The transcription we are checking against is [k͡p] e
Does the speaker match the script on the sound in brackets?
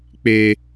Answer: yes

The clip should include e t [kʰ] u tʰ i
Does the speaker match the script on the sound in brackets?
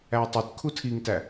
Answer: yes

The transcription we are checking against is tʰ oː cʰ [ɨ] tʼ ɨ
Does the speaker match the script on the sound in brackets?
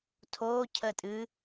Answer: no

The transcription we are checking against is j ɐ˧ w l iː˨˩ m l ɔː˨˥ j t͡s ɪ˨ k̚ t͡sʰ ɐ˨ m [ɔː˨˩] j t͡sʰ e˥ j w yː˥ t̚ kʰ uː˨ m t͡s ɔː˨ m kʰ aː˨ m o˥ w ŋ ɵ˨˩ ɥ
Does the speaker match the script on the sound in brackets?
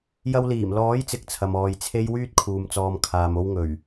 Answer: no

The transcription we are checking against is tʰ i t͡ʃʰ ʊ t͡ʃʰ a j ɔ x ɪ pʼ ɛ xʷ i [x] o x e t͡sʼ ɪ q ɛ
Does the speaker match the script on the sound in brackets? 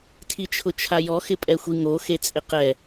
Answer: no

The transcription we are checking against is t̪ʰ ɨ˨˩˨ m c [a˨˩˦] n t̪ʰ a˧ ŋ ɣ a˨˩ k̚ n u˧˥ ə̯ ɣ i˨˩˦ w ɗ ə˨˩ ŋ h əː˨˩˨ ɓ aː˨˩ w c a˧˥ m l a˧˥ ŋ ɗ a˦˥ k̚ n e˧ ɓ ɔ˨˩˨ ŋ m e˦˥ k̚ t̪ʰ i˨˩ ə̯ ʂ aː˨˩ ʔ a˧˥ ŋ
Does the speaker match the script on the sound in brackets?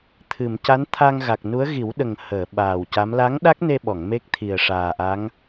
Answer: no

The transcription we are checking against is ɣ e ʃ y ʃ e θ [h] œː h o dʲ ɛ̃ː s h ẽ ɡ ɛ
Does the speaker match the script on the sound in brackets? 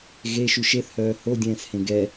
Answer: yes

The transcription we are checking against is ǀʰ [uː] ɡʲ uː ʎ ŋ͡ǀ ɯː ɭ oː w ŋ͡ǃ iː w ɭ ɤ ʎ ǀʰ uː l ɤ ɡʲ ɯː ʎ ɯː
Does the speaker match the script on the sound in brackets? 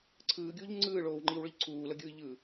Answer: no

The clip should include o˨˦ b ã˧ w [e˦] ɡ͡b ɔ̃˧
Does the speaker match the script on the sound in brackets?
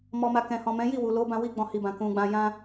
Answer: no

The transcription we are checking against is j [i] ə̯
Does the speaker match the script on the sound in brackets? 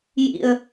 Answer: no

